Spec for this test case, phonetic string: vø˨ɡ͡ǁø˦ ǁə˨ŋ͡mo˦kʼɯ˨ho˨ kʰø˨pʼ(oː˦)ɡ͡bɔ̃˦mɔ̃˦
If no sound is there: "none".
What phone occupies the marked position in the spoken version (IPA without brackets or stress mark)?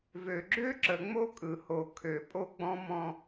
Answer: o˦